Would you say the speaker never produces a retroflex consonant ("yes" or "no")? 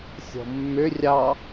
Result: yes